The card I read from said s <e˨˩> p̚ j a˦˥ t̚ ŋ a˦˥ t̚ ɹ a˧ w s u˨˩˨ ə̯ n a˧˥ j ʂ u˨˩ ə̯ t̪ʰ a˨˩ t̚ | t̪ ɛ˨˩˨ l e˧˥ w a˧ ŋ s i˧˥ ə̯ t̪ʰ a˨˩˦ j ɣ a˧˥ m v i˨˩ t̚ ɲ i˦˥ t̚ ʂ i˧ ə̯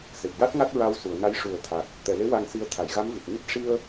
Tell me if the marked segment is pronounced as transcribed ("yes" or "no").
yes